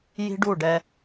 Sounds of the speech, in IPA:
ji̤˦ɖu˦˨ɖɛ˦

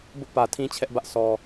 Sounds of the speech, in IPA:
bʊ˦ʔpä˨ tʰĩ˦t͡ɕʰɛ˦ʔbä˦ʔ sʰɔ˨

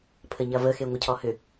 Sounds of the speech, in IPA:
pʰəɲɐvə xeŋʷəcʰɔhʏ

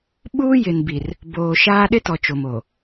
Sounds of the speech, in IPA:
ɓuː˦jɪ˨n bi˨r | boː˨ʃaː˦ ɗɪ˦tɔ˨ t͡ʃo˨mo˨

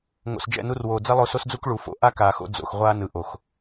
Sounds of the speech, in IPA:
ŋo̰˨sd͡ʒɛ̰˦˨nu˧rwoː˨ d͡zɛ˦lˠo˧so˦sd͡zu˦k ɭu˨fo̰˧ ʔa˦kaː˨xo̰˧ d͡zo̰˨xʁʷaː˧ nɯ˨ʔo˨x

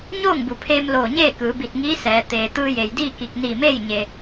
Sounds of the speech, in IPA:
ɲoː˥˨ŋbu˩˧pʰeː˧mloː˧˩ ɲeː˥˨kɯː˩˧bi˧˩t̚ŋiː˧˥ sɛː˩˧ t̪eː˧ t̪ɯː˧je˩jdiː˥˨ki˧˩k̚ niː˧˩meː˥˨j ɲe˧

